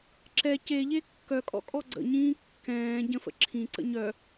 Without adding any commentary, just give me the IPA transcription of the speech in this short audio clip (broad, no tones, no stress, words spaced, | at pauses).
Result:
ǁɛ ceʎe kːœkʼɔ̰ kʼɔɡ͡ǀə̰ɲĩː kːɛ̃ː ɟə̃fə̰ ǁʰĩǀə̰ ɲœ